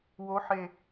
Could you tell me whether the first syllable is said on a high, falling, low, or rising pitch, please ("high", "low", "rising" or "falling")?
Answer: rising